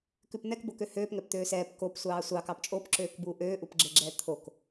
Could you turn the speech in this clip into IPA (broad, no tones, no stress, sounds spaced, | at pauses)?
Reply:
k ʉ p n̪ ɛ k b o k ø h øː p ŋ ɛ p t̪ øː s ɛː p k o p sʷ ɑː sʷ ɑ k ɑ p t͡ʃʼ o p ǁ øː k b uː ʔ øː ʔ u p ɡ͡ǁ e ɡ͡ǁ ɛː t̪ʰ o k